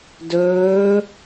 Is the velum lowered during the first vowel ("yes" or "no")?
no